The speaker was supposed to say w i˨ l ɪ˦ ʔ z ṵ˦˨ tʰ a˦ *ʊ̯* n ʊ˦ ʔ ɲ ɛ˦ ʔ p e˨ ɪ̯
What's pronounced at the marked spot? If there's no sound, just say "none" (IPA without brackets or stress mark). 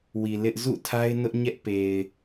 ɪ̯